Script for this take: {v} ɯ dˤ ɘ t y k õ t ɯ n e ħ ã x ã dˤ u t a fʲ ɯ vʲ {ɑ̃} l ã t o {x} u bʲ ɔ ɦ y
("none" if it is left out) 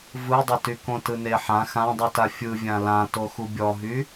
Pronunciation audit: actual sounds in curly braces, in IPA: v, ã, x

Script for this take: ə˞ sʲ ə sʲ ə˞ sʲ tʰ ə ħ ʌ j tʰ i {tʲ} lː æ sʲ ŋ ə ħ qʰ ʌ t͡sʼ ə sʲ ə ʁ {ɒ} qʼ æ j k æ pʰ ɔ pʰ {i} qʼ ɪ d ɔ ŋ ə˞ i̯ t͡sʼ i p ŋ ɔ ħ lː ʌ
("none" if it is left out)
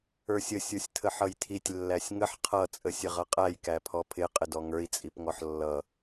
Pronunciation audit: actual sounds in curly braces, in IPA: tʲ, ʌ, ɪ

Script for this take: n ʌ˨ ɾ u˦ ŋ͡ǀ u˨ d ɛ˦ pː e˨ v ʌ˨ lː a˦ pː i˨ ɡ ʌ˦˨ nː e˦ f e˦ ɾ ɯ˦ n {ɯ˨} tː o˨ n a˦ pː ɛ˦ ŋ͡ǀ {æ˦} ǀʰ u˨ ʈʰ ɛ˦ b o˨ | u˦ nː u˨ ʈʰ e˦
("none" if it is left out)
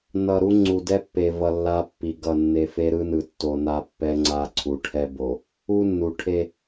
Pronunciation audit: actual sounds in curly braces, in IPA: ɯ˨, a˦

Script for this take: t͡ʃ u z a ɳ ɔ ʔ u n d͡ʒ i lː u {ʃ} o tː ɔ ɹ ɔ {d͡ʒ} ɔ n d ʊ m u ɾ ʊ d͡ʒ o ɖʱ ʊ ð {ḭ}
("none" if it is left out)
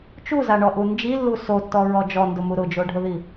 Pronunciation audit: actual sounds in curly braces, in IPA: s, d͡ʒ, i

